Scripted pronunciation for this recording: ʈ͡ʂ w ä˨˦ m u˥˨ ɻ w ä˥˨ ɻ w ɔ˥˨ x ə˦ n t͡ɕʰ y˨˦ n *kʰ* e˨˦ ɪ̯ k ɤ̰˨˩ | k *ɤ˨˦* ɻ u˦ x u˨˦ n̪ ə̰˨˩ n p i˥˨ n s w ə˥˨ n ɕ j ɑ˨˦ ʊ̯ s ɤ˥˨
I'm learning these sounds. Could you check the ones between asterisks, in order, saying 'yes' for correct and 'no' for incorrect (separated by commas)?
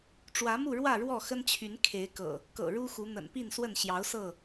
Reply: yes, no